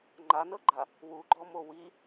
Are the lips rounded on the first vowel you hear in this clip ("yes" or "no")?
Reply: no